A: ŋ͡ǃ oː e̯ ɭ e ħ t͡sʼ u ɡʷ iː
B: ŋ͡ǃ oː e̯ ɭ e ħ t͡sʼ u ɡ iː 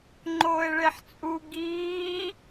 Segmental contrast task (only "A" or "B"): B